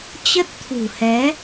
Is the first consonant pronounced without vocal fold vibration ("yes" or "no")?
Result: yes